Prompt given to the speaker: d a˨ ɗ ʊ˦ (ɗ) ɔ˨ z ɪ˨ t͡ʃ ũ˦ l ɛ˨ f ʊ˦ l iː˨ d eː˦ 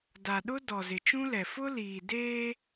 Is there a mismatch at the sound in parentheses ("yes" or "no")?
yes